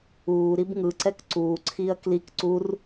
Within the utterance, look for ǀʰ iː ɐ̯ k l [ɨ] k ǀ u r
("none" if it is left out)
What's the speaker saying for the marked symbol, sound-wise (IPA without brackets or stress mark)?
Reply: i